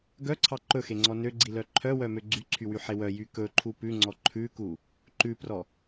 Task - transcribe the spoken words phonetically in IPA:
ɡ œ ǀʰ ɑ ǃ ɵ x e ŋ͡ǀ ɔ n ø ɡ͡ǀ i l œ ǃʰ œ w œ m ø ɡ͡ǀ y ǀʰ y w y ħ e w œ j y k ɵ ǃʰ u p ʉ ŋ͡ǀ ɔ ǃʰ ʉ k u | ǃ ʉ p r ɔ

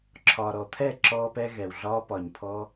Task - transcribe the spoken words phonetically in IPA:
ǁʰ ɒː˨ ɾ ɔ˨ t̪ʰ ɛ˦˨ ǁ ɔː˧ p ɛ˧ ɣ ɛ˨ w ɮ ɒː˦ p ɒː˨ ɲ pʰ ɔ˧

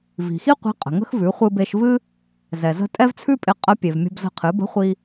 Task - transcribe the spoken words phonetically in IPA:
v i̤˩ x i˥ qʷ i̤˧˥ qʼ ə̤˩ ŋ ə̤˥ x v ʉ˩˧ χʷ ɨ˧ b e˧ ʃ v ɨ˥ | z ɛ˩ z ə̤˧ tʼ ɛ˥ v t͡sʰ ʉ˥ pʼ ɪ˧ qʼ ə˧˥ pʲ e˩ v mʲ ə̤˧ b z ə̤˧ qʰ ɨ˩˧ b ə̤˧˥ χʷ i˧

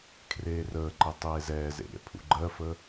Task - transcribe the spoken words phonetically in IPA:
kʰ r eː r əː ǃ e tˤ eː z ɛː z ḛ ɾʲ ɛ̰ pʰ ṵ ɡ͡ǃ ɜ f ə

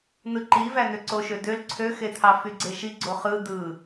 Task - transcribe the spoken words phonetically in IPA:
n̪ ɯ ǃ i v æ n̪ ø ǀ o ʃ ø d̪ ø l ǀʰ ø x e t̪ʰ ɑ f y ɡ͡ǀ e ʃ i ɡ͡ǀ o χ ɯ d̪ ɯ

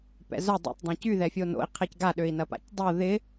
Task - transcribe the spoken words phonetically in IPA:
p ɛ̰ z œ dˤ ɛ̰ tˤ dˤ ɐ̃ c y ð ɛ fʲ o n o̰ i̯ qʰ ɛ c ɡ a ɗ ø i̯ n ɐ p a̰ c dˤ o ð ɪ

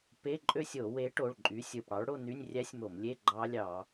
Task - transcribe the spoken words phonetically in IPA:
p e˧˥˧ ǃʼ ø˥˧ sʲ o˧˩˧ w e˨˥ ʈ o˩˧˩ ɭ ǃʼ y˨˥ sʲ ɯ˩˧˩ p ɽ ɑ˨˥ ɭ ɽ o˥˧ n y˧˥˧ nʲ rʲ æ˦˥ sʲ m o˧˩˧ m lʲ e˧˥˧ ɡ͡ǃ ɑ˦˥ lʲ ɑ˧˩˧

